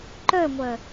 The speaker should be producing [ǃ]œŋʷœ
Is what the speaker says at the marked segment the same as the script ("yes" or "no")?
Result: yes